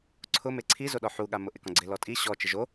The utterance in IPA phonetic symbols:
ǀʰ ʊ m e ǀʰ i z o ɗ ɔ ħ u ɠ a m ʊ ʔ ɪ k ɔ̃ ɡ͡ǀ ɪ l ɔ tʼ i ɕ ɔ t͡ʃ ɪ ʒ o

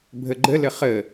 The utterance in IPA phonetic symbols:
bʱ ə ɡ͡ǃ ə l ə χ ə

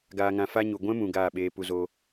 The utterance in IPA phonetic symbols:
ɡ aː˧ ŋ ã˧ f a˦ ɲ u˨ ɡʷ ɛ̃˦ m ũ˨ ɡ aː˦˨ ɓ eː˧ p u˧ z oː˧

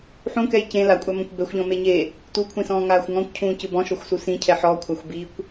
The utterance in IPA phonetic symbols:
ħ ũ k ɛ j c ẽ l a kʷʼ a m ɔ̃ kʷ b ɛ xʷ ʎ ɔ̃ m e ɲ e | t u kʷʰ ĩ s ɔ̃ː ŋ aː xʷ ŋ ɔ̃ kʷ cʰ ũː c ɯ b ɔ̃ ʃ ɔ xʷ s u s ĩ cʰ ɛ ħ ɔ kʷʰ a xʷ b i kʷ

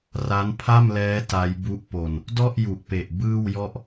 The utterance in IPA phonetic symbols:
r a˦˥ n pʰ a˥˩ m l ɛː˦˥ t a˦˥ j b u˦˥ ʔ p o˧ n | d ɔ˥˩ ʔ j u˨˩ ʔ p e˨˩ ʔ b ɯː˥˩ w j ɔ˥˩ ʔ

